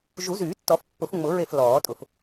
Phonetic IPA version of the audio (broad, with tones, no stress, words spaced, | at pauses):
ʒu˨˩˦zyː˨˩˦tːɔ˨˩˦f pːʊ˨˩˦fŋ͡mʊ˨˩˦ɹe˧˩f lɔː˨˩˦tʼʊ˨˩˦f